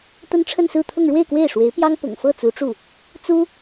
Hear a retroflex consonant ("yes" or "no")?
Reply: yes